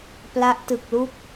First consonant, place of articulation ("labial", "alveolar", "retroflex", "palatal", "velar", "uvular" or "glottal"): labial